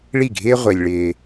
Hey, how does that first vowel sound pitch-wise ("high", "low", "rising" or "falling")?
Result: falling